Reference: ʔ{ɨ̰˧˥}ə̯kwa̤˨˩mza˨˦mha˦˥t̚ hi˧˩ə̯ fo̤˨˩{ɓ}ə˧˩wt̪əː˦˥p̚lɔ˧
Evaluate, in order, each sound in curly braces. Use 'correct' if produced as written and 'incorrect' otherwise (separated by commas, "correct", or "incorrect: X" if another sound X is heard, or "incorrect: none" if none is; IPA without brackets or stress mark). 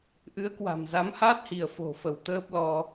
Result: incorrect: ɨ˨˦, incorrect: f